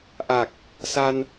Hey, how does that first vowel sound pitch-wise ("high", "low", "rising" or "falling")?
low